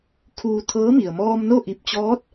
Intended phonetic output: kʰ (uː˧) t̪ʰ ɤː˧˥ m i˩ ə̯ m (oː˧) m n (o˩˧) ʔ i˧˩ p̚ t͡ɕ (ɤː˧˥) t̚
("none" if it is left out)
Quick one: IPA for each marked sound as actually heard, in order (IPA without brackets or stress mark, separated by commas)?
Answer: uː˧, ɔː˧, o˥˨, ɔː˧˥